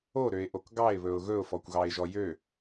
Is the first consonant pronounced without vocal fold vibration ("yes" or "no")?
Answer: no